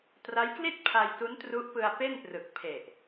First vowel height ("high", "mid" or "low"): low